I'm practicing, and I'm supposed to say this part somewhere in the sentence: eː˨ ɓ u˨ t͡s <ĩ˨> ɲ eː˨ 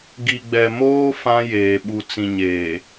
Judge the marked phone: correct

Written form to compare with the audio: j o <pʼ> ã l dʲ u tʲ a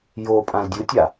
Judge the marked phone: correct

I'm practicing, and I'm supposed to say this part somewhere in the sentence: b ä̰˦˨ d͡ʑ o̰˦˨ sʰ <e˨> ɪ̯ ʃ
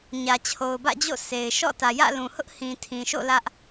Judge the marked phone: correct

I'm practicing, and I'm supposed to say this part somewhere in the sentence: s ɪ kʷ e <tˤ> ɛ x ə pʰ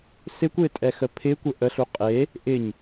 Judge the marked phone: incorrect: tʼ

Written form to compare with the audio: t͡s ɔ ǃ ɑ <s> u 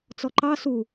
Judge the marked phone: correct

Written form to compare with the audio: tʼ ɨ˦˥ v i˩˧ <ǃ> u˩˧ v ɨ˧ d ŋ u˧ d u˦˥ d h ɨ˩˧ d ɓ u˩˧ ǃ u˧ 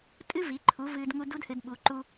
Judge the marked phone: incorrect: ǃʰ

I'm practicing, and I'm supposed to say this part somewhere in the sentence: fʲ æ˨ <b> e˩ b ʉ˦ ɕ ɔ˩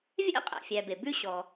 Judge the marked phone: correct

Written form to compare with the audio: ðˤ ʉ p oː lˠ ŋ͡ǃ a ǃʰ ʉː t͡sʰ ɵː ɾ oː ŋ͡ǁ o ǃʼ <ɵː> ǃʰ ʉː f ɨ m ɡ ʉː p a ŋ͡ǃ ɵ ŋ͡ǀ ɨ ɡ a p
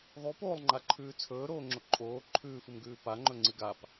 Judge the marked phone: incorrect: oː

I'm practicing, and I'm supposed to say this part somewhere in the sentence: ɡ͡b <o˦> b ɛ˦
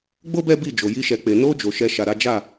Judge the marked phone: correct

